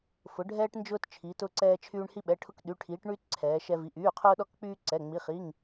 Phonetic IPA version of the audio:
f ʊ˩˧ ɖʱ ɛː˧ ʈ n d͡ʒ ʊː˧ t t͡ʃʰ iː˩˧ t ʊ˩˧˩ ǀ ɛː˧ t͡ʃʰ yː˧ ɳ h i˧ ɓ ɛ˩˧˩ ʈʰ ʊ˧ k ɗ y˩˧˩ ʈʰ iː˩˧ ʈ ɳ yː˧ t ǀʰ ɛː˩˧ ʃ ɛ˧ v i˩˧˩ ʔ yː˩˧˩ qʰ ʊː˧ ɗ ɔ˧ k k͡p yː˧ ǀ ɛ˩˧˩ ŋ͡m i˩˧˩ χ i˩˧˩ ŋ

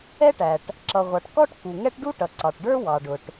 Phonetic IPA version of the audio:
ɛ˥ ʈ æ˩ ʈ | ǁ ʌ˩ ʁʷ ɑ˩ ʈ k ɔ˥ ʈ k u˩ ŋ ɛ˥ ʈ ɖ u˥ ʈ ʌ˩ ǀ ɑ˩ ʈ ɖ ə˞˥ w ɑ˩ ɖ ʊ˩ ʈ

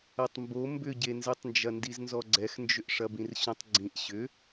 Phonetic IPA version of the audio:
ɐ tˤ m b o m b ʏ ɟ e n z e tˤ n d͡ʒ ɐ n d i z n z ɔ ɡ͡ǀ ɛ x n d͡ʒ ʏ ʔ ʂ ɐ b ĩ r ɕ õ tˤ ɡ͡ǀ ĩ ʔ ɕ ʏ

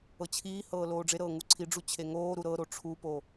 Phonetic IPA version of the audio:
ɤ t͡ɕʰ iː h ɤː l oː ɖ͡ʐ e ɾ ɤː ŋ u ǀʰ i ɖ͡ʐ u t͡ɕʰ e ŋ oː ɾ u ɾ ɤ ɾ o ʈ͡ʂʰ u p o

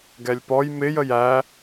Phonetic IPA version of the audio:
ɡ ɛ lʲ p ɔ j m ɪ j ə j æ

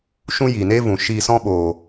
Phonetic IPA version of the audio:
ʃ ũ˦ j iː˨ n eː˦ v ũ˨ ʃ iː˧ s ɔ̃˦ ɓ oː˨

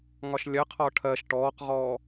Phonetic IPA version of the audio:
ŋ ɒ ʃ lʲ ɜ qʰ ɒ ʈʰ ɜ ʃ ʈ ɔː q ʁ ɔː

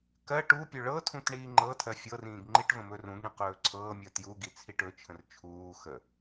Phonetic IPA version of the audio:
k ɜ ʈ u pʲ ɵ ɭ ɤ tʰ ũ t ɳ iː ŋ͡ǃ ɤ tʰ ɜ fʲ ɤ r ĩː ɡ ŋ͡ǃ i ʈ v ə̃ m ɵ r ũ ɡ ɳ ĩ q ɵː ǀʰ ɤː mʲ ɜ t j u ɡ i t͡sʰ i ʈ ɵ t͡ʃʰ ə̃ r t͡ʃʰ uː x ə

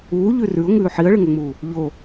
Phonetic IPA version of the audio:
uː ʎ ʉ r ʉ ʊ̯ ŋ ʉː ħ i ə̯ ɭ ɨ ŋ ɵ ŋ͡m uː | ʎ o

